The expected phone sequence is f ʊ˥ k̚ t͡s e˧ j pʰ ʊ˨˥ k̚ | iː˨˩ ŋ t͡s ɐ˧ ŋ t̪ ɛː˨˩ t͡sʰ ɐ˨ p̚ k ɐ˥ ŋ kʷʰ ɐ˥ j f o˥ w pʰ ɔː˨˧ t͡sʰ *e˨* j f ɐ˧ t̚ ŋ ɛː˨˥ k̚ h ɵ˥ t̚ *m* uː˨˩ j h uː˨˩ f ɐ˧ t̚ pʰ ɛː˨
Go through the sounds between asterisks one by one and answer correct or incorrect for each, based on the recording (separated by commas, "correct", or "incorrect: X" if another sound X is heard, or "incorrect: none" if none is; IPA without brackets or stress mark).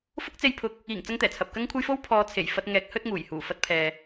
incorrect: e˨˩, incorrect: ŋ